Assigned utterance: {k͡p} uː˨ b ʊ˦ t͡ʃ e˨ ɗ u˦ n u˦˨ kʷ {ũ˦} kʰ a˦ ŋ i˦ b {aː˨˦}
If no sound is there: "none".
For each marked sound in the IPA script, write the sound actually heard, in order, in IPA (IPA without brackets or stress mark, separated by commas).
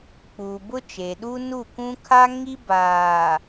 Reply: k͡p, ũ˦, aː˨